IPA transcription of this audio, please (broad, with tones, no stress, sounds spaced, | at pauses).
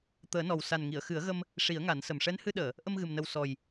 t̪ əː˨˩˦ n ɔ˨˩ w s a˨˩ n ŋ i˨˩˨ ə̯ x ɨ˨˩˦ ə̯ ɣ ə˧ m | ʂ i˨˩˦ ə̯ ŋ a˨˩˦ n s ə˨˩ m ʂ ɛ˧˥ n h ɨ˧ ɗ əː˨˩˨ | ʔ ə˧ m ɣ ɨ˨˩ m n ə˨˩ w s ɔ˨˩ j